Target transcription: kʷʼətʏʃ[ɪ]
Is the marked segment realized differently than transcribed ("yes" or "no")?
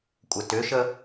yes